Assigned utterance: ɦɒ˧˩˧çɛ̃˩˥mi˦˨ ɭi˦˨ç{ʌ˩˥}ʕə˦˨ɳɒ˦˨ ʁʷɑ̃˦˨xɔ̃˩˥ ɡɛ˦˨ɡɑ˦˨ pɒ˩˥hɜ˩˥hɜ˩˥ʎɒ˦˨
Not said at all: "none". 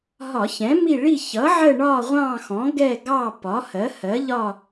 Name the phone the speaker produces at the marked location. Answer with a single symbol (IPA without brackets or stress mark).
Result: ʌ˩˥